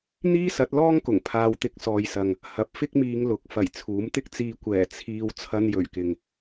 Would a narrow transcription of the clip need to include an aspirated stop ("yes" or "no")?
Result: yes